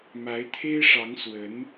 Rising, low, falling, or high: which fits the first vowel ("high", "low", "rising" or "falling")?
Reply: rising